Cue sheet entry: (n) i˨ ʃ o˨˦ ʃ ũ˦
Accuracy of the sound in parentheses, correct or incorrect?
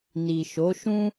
correct